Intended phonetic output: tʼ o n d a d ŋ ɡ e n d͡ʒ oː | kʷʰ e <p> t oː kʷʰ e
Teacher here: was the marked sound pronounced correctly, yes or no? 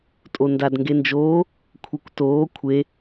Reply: no